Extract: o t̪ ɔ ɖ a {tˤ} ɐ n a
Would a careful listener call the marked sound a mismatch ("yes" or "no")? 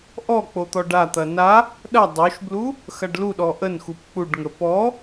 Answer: yes